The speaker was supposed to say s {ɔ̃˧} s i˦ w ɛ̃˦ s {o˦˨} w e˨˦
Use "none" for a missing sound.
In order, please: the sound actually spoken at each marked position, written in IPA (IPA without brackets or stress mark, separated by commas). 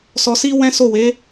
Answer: ɔ˧, o˦˨